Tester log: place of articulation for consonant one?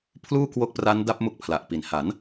labial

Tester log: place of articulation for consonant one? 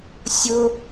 alveolar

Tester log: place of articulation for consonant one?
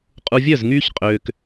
uvular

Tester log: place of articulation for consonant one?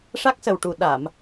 retroflex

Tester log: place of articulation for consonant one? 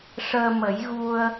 retroflex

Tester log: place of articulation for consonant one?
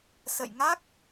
alveolar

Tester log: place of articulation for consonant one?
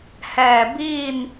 glottal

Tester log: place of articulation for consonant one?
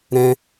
alveolar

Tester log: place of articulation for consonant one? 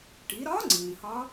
retroflex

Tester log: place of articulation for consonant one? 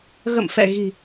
velar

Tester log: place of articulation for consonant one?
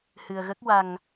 glottal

